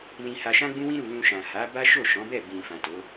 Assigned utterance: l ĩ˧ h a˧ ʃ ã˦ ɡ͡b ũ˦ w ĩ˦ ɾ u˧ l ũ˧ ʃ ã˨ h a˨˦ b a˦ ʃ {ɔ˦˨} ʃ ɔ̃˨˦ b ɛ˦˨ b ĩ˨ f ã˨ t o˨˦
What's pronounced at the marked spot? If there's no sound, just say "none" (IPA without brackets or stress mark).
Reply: o˦˨